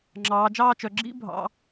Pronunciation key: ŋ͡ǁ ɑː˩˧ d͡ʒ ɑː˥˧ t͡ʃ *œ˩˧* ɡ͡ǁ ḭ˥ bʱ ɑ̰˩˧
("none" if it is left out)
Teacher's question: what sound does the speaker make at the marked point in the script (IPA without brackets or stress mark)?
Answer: œ˩˧